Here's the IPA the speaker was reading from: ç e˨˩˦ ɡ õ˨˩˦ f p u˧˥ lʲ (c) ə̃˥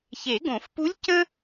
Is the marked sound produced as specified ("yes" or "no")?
yes